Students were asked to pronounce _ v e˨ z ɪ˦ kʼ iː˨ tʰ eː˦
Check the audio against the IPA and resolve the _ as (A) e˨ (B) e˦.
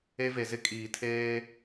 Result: B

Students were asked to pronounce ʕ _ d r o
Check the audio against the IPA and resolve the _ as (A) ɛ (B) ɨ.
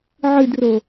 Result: B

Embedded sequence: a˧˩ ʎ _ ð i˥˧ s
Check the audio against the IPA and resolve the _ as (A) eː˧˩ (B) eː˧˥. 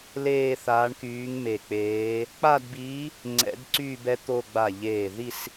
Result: A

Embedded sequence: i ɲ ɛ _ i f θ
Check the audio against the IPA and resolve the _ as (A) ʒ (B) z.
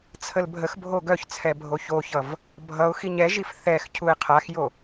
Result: A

